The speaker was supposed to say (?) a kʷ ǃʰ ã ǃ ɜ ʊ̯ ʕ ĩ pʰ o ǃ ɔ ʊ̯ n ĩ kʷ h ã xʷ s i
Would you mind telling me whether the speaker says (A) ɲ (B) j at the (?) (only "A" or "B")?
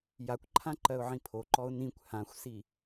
B